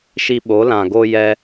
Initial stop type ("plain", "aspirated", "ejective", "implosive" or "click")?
implosive